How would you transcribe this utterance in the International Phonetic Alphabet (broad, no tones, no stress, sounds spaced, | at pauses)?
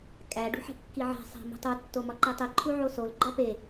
kʼ æ ɖ ṳ ħ e̤ kː i ʕ æ̤ sˤ æ̤ m ṳ tˤ u tː o m ɒ ǃ i tˤ i ǃʰ u ʕ o s o l ɡ͡ǃ ɒ p e